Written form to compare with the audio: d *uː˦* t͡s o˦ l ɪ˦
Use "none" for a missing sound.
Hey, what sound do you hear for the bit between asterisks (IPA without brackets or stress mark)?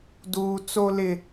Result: uː˦